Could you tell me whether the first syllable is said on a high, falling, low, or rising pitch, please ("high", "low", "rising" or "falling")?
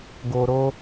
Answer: low